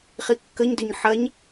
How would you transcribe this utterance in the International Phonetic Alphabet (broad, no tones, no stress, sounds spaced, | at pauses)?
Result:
χ i kː ə ɲ d ʏ ɲ ħ ɐ ɲ